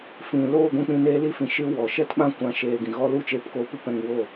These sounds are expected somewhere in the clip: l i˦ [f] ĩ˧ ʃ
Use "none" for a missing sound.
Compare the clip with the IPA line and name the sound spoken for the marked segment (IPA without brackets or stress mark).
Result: f